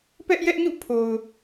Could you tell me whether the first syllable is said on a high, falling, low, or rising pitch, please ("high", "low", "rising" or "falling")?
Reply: high